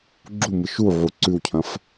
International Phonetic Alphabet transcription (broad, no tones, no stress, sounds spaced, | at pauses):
ɡ͡ǁ u m ɨ ʃ u ʕ u ǀ ʉ w cʰ ɐ̃ f